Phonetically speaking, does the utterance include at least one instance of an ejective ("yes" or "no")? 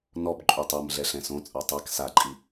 yes